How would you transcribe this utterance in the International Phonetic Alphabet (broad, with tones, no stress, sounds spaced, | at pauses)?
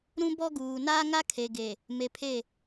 ɾ ũ˦ b ɔ˦ ɡ uː˨ n aː˦ ŋ a˦ kʰ e˨ ɡ e˨ | m e˨ pʰ e˦˨